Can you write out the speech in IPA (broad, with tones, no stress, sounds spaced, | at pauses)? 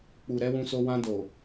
k͡p u˨ ɾ ɛ˨˦ w ũ˧ s o˧ w ã˧ d o˨